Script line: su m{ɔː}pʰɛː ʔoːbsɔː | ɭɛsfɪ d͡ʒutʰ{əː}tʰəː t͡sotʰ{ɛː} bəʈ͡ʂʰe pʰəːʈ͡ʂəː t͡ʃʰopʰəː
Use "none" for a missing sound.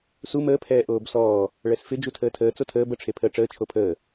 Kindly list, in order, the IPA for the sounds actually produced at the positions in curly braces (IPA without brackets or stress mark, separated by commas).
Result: əː, əː, əː